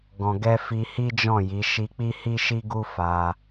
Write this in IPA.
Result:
ɡ ɔ̃˨ ɡ ɛ˧ f i˧ h i˦ d͡ʒ ɔ̃˦˨ j i˨˦ ʃ i˧ k͡p i˦ h i˦ ʃ i˦ ɡ u˦ f a˧

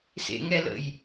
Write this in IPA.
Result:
s ḛ ŋ ɛ l ə̰ j

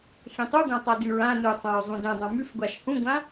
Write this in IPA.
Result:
x ẽ tˤ u ɡʷ ã tˤ a d ʉ ɹ ã n u tˤ ã ɹ zˤ ũ d ẽ dˤ ã m ʉ f ɡʷ a ʃ h ũ ɡʷ ã

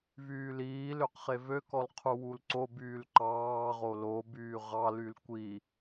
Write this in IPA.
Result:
v yː l iː l ø q χ e v ø k ɔ l qʰ u w u l ǀ o b yː l ǃ ɑː ʁ o l o b yː ʁ ɑ l y l kʷ i

